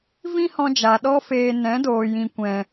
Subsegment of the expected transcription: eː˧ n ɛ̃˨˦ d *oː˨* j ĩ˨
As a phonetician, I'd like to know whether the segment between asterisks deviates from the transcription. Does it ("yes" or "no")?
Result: no